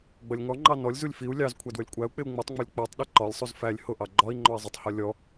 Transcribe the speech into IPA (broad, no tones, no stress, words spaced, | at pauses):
ɡ͡bʌlʲŋɔŋ͡ǃɑ nɔlʲzulʲ fiu̯ lʲɑzkʷʰæ dwəlʲkʷʼæu̯k͡pɪu̯ ŋ͡mitˤŋ͡mʌlʲ k͡pɜtˤɗi ǃɒlʲsˤuz fælʲ hʊʔɑ ɡ͡ǃɒi̯ŋ͡ǃɔi̯ zˤətˤhɒ lʲɔ